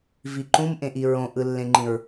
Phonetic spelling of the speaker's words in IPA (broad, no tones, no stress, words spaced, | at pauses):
viǃũmʔẽʔi ɹõʔɯlːẽŋ͡ǃĩɹ